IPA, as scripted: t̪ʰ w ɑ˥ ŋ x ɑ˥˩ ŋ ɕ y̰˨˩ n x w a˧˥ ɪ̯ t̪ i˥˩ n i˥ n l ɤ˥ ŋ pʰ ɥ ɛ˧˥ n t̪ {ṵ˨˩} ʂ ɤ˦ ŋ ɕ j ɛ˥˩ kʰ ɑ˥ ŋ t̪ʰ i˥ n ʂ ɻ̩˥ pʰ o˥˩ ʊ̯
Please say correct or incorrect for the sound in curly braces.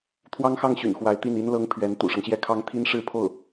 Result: correct